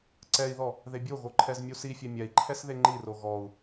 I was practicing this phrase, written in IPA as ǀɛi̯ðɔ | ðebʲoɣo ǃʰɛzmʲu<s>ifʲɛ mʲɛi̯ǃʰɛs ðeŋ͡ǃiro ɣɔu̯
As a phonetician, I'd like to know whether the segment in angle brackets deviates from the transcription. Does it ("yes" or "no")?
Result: no